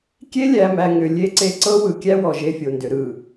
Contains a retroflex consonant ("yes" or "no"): no